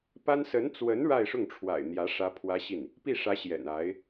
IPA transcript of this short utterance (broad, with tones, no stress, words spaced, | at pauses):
pa˥n sə˧˥nt͡swə˧˥n ɻa˥˧ɪ̯ʂʊ˥˩ŋʈ͡ʂʰwa̰˨˩ɪ̯n̪jä˧˥ ʂä˥pʰwä˥ɕi˥˩n | pi˥˩ʂä˧˥ ɕjɛ̰˨˩na˧˥ɪ̯